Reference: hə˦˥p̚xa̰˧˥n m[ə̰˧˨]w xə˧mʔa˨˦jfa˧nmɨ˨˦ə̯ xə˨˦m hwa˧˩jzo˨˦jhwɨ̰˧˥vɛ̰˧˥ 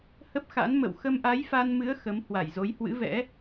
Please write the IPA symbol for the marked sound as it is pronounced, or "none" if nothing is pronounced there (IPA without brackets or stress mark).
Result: ə̰˧˨